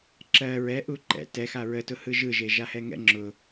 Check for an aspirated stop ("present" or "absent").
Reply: absent